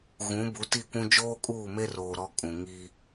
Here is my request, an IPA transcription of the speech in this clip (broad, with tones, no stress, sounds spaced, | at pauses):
ɣ ũ˨˦ b u˨˦ t i˦˨ kʷ ũ˦ d͡ʒ oː˦ kʼ uː˦˨ m e˦ r oː˨ ɾ ɔ˦ kʼ ũ˨ ŋ i˦